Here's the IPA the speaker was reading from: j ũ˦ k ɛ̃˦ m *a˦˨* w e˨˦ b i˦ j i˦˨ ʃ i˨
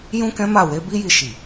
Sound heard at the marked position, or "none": a˦˨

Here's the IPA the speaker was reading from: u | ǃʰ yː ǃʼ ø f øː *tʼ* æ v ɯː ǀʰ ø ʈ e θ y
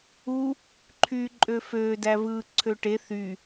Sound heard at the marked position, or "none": d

